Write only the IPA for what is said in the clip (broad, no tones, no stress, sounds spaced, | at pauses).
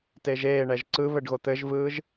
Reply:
t e ʒ eː ɳ ɛ ʒ ǀ ɯ β ɘ ɖ ɣ o t̪ ɘ ʒ v ɯː ʒ